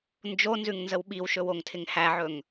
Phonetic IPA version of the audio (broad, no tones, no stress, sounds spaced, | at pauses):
n d͡ʒ o n z ʉ ŋ n z ə w ɓ i w ʃ ɵ w o ŋ tʰ ɪ ŋ h æ ʕ ɵ ŋ